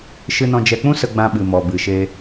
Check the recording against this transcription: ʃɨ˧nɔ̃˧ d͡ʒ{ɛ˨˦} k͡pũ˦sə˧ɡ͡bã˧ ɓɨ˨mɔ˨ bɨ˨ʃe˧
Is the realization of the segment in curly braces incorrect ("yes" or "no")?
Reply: yes